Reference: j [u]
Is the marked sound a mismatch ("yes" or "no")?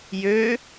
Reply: yes